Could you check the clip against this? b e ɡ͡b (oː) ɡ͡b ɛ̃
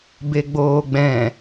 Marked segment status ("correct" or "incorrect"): correct